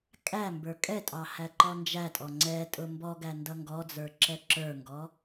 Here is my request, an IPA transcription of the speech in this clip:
kʼæ mbə˞kʼɛtʼɑ hæǃɔnd͡ʒætʼɔ ŋ͡ǀɛ tʼʊmbɔɡæ ndʌŋɡɔd͡zə˞ ǁɛǁə˞ŋɡɔ

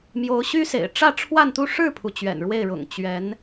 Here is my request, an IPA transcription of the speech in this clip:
mjo˧˥ʊ̯ɕy˥sḛ˨˩ɪ̯ ʈ͡ʂä˥˧ʈ͡ʂʰwa˥˧nt̪u˥˧ ʂɻ̩˥˩pʰu˩ t͡ɕɥɛ̰˨˩nɻwe˥˩ɪ̯ɻʊ̰˨˩ŋ t͡ɕɥɛ˧˥n

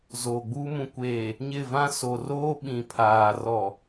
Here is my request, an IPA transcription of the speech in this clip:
zoː˨ɡ͡buː˦ mũ˨kʷeː˨ | ɲɪ˦˨vã˦ so˨ roː˦ɓĩ˨ pʰaː˨ rɔ˨

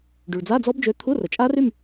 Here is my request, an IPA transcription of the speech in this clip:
ɖy˩ɭd͡za˧˥˧d͡zɔ˦˥bd͡ʒø˨˥ t̪ʰu˧˥˧rə˩t͡ʃʼa˦˥r y˥˨m

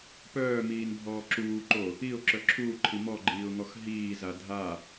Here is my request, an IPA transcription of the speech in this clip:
pœːmiːnbʱɔː ǁuːǃo | iʊ̯ǁœ ǁʰuːǃʰi mɔɡ͡ǃiːʊ̯ŋɔx ɦiːza dʱa

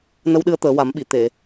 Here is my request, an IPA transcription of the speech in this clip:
nə˧wɗɨ˧ə̯ t̪əː˨˩˦wa˨˩˦mɓi˨˩˨ t̪e˨˩˨

